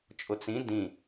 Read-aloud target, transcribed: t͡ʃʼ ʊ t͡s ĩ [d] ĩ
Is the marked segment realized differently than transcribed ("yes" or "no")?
no